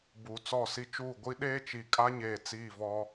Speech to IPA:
b uː˨ t͡s ɔ˦˨ s i˦ t͡ʃ uː˦˨ ɡʷ i˦ ɗ eː˦ t͡ʃ i˨ kʼ a˦ ɲ eː˨ t͡s iː˦˨ v ɔ˦

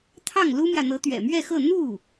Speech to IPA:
t̪ʰ ɑ˥˩ ŋ l u˥ m j ä˨ n̪ ɤ˧˥ t̪ ɥ ɛ̰˨˩ m ɥ ɛ˥˧ x ɤ˥˧ n̪ u˥˩

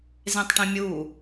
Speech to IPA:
z ẽ tˤ ʈ ĩ mʲ u

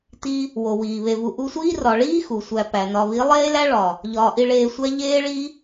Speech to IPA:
t i˦ | w o˨ w iː˨ β e˧ v u˧ ʔ u˧ sʷ iː˦ r ɒ˨ ɭ iː˦ x u˨ sʷ æ˧ p æ˨ n ɒ˧ β i˨˦ lˠ eː˦ l æ˦ ɭ ɒ˨ | ʎ ɒː˨ ʔ i˧ ɭ eː˧ sʷ æ˦ ʎ eː˦ ɭ i˦

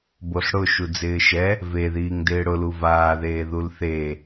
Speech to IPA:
b o ɬ ɽ ʊ ʃ u d͡z ɪː ʃ ɛ | v e ð iː ŋ d ɪː ɽ ʊ l u v aː ð eː ð u l θ e

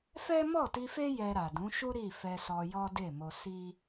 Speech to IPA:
f ɛ˦ m ɔ˦˨ t i˧ f e˦ j ɛ˧ ɾ a˨ d ũ˨˦ ʃ u˦ ɾ i˦˨ f ɛ˧ s ɔ˧ j ɔ˦ d e˦˨ m o˧ s i˦

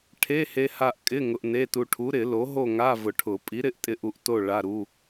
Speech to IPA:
ʈʰ e˧˥˧ h e˧ h a˧ ʔ kʼ ɪ˧˥˧ ŋ ʊ˧ ʔ n e˧˥˧ t u˧ ʈʰ u˨˥ ɾ ɪ˨˩˦ l o˨˥ ɦ o˥˧ ŋ a˧˥˧ v ʊ˨˩˦ ʈʰ ʊ˨˩˦ pʼ i˨˥ ɾ ɪ˨˥ ʔ tʼ ɪ˧ ʔ u˧ ʔ t o˥˧ ɭ a˧˥˧ ɾ u˧˥˧

